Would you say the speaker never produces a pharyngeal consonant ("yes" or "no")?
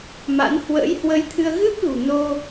yes